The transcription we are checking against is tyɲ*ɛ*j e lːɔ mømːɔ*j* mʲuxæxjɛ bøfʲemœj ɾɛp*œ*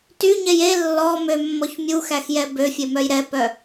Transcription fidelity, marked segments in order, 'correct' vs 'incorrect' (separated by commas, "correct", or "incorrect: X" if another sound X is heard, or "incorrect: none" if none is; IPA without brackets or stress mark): correct, incorrect: ç, correct